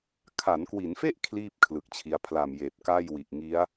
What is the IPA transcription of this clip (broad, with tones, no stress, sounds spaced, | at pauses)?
kʰ a˩˦ n k w i˩˦ n f e˥˩ ʔ kʰ l iː˥˩ p̚ kʰ l ɯ˨˩ k̚ t͡ɕʰ i˧ a̯ pʰ l a˨˩ m j eː˨˩ p̚ k a˥˩ j w i˨˩ ʔ ŋ i˦˥ a̯